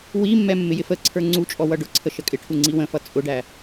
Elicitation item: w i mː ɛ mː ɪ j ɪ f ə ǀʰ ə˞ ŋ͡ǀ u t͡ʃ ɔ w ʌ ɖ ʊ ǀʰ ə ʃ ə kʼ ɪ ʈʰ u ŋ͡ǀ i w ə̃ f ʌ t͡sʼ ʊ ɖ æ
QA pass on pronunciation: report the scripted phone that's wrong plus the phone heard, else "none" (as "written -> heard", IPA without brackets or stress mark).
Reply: t͡ʃ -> t͡ʃʼ